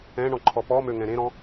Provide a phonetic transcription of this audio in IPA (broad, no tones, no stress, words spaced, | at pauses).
ɛ̃ɳɔ̃ǃʰɔ pɔmøŋɛ̃ ɾẽɾɔ̃